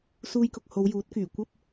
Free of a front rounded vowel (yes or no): no